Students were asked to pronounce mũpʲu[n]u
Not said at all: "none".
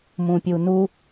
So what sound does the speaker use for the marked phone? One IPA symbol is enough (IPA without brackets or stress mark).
n